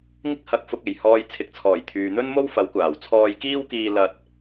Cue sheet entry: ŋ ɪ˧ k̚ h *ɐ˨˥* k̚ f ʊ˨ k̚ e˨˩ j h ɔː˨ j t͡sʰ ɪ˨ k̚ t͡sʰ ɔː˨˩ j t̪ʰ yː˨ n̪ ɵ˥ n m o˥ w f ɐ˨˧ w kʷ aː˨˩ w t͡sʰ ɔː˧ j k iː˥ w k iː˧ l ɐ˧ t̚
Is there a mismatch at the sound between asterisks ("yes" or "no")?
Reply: yes